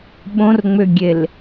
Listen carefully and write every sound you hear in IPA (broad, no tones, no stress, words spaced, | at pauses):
ɓõrŋ͡mʏɡʲel